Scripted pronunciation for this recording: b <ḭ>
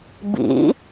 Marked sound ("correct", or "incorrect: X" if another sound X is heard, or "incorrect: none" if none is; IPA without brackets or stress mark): correct